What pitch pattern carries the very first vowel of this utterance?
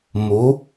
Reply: rising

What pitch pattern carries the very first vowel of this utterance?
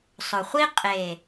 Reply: low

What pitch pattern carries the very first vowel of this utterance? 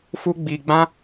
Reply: high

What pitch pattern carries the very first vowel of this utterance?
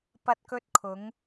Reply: high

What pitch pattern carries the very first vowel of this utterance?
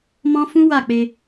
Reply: high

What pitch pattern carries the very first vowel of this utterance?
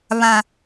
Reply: low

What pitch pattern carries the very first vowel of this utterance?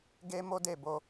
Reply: high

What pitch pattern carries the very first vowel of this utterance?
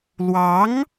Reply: rising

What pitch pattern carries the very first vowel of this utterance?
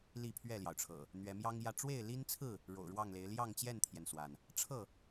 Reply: falling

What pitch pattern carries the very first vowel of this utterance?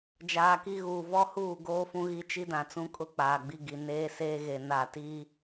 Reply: low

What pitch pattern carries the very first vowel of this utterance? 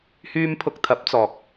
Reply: low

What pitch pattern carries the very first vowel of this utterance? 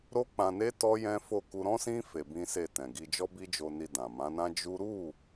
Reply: high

